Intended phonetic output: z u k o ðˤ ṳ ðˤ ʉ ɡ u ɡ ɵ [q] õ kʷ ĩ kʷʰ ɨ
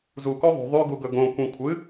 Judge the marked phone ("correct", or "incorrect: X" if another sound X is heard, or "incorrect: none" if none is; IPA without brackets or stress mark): incorrect: ɡ